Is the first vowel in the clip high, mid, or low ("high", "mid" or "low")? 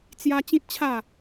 low